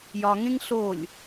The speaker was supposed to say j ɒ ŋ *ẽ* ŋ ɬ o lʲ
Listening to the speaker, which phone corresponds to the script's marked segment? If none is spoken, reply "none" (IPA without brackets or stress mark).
ẽ